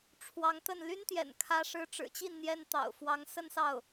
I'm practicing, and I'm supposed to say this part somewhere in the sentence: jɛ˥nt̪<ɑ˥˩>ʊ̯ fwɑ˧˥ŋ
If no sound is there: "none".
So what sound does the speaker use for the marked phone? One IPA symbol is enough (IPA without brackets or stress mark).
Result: ɑ̰˨˩